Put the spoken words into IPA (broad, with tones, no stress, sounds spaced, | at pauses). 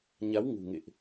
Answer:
ɲ a˨˦ w ŋ ṳ˨˩ ŋ ḛ˧˨ ʔ